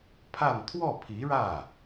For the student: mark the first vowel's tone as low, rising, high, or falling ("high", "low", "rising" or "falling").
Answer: falling